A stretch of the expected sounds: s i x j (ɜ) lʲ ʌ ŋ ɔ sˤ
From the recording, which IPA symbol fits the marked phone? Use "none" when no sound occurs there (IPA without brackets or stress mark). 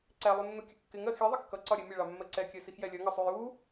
ɛ